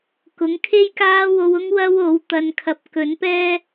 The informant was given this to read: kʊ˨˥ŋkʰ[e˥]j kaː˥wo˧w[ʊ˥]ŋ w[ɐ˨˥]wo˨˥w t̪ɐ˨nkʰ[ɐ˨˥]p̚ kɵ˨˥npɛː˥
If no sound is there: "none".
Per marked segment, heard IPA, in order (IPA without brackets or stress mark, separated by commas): e˥, ʊ˥, ɐ˥, ɐ˨